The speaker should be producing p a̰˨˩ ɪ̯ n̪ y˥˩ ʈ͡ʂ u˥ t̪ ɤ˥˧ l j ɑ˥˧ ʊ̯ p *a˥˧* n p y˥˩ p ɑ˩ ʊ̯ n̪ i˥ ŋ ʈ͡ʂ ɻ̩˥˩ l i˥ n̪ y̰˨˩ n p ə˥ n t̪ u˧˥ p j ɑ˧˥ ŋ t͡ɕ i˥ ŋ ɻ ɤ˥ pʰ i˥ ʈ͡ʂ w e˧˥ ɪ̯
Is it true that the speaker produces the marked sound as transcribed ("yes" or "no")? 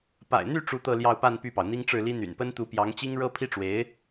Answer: yes